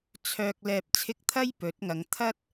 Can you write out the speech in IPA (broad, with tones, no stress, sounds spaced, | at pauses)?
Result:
t͡sʰ œː˨ k̚ l ɛː˨ p̚ t͡sʰ ɪ˧ k̚ t̪ʰ ɐ˥ j p ɵ˨˥ t̚ ŋ ɐ˨˧ ŋ t̪ʰ ɐ˥ t̚